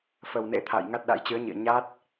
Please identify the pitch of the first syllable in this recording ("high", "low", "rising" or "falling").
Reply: low